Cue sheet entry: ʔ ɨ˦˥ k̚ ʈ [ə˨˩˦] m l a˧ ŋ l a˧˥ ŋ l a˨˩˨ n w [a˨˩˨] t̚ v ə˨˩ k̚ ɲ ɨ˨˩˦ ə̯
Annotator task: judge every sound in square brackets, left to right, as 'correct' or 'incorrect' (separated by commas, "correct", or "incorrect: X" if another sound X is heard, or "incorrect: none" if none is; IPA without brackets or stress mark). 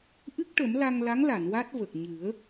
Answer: correct, incorrect: a˦˥